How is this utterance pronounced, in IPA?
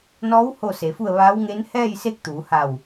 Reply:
n ɔː˧˥ w h o˥˨ s e˩˧ f u˥˨ ə̯ ʋ aː˧˥ w ŋ e˧˥ n h ɛː˥˨ j s e˧˥ k̚ t̪ uː˩˧ h a˧˩ w

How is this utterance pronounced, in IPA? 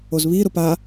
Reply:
o z β i ɾ ʊ p a

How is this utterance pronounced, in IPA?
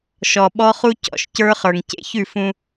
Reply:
ʃ ɔ˨ ɓ ɔ˦ χ u˦ c ɔ̰˨ ʃ c ə˞˦ χ ə˞˨ ŋ c ḛ˦ ç ʉ˦˨ f ũ˦

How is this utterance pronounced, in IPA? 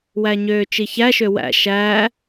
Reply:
w æ ɲ øː t͡ʃ i ç æ ʃ ø w æ̰ ʃ æ

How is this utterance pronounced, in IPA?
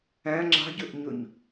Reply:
æ̃ ŋ͡ǁ ɑ̤ ɟ ɵ ʔ ɲ ɵ ɲ

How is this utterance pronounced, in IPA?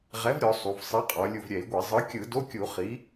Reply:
ʁ ɛ˩˥ v ɾʲ ɔ˩˧ sˤ u˩˧ v sˤ i˩˥ qʼ ɔ˩˧ lʲ u˧˩ v ɾʲ ɛ˧˩˧ i̯ ɡʷ e˧˩˧ zˤ ɯ˩˥ kʲ ɯ˧˩˧ d o˧˥˧ kʲ u˧˩˧ χ i˩˥

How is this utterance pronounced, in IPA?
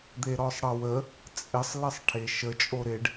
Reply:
d̪ e ɾ ɔ sˤ ɽ ʌ w ə | t͡sʼ ɪ sˤ l ə sˤ ʈʰ e ʃ ə t͡ʃʼ o ɾ ɪ ɖ

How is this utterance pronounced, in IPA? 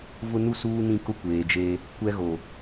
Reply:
v ʊ˦ n u˦ s uː˦ n ĩ˦ k ʊ˦ kʷ eː˨ d͡ʒ eː˦ | kʷ ɛ˦ ɣ o˨

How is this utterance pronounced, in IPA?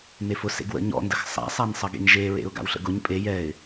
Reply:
n e f ʊ s ḛ ɡ w ə̰ ɲ ɔ̰ n d ə x sˤ a̰ sˤ a n sˤ ʌ ɡ ḛ ɲ ʒ e ɹ ḛ ʊ̯ ɡ a̰ w ɬ ə̰ ɡ ʊ ɲ pʼ e j ɛ ɪ̯

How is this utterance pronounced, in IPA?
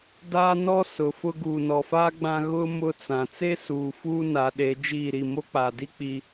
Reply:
d aː˦ n ɔ˦ s ʊ˨˦ f ʊ˦ ɡ uː˨ n ɔ˨ f aː˦ ɡ͡b ã˦ ɣ ʊ˦ m ʊ˦ t͡s ã˨ t͡s e˦ s uː˨ f uː˦ n a˨˦ ɗ e˨˦ d͡ʒ iː˦˨ ɾ i˦˨ m o˦ k͡p aː˨ d i˦ k͡p i˦

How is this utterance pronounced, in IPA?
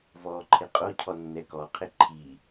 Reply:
v ɔ ǃʰ ɪ qʼ o cʰ ɔ nː ɛ k ɔ qʰ ɪ ǃʰ i

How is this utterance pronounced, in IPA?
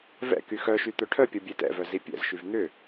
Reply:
v ɛ̰ k y x œ ʃ y t̪ œ ʈʰ œ pʲ ɔ bʲ e t ɛ̰ v œ z i pʲ ɛ̰ z ʃ y v n̪ ʏ

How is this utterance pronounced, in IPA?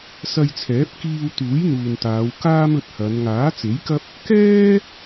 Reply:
s ɐ˧ j t͡sʰ ɛː˨˥ p̚ k iː˧ w t̪ uː˨˥ j n̪ uː˨ n t̪ aː˨˧ w k aː˥ m ɵ˧ t̚ h ɐ˨˧ n ŋ aː˨˥ t͡s e˨˥ j k ɐ˥ p̚ | k ɛː˥

